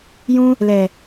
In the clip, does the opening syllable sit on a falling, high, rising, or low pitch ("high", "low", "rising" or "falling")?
high